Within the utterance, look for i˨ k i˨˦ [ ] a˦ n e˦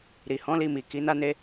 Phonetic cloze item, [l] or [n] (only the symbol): n